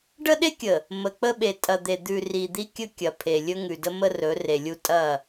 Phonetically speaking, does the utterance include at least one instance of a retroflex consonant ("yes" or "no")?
yes